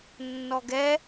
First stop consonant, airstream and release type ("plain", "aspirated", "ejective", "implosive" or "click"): plain